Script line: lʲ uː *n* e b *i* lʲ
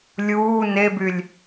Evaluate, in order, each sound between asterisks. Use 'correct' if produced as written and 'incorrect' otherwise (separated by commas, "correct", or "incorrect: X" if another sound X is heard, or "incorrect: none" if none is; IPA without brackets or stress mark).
correct, incorrect: y